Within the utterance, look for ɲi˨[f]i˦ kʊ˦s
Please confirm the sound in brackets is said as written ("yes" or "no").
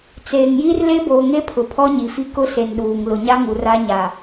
yes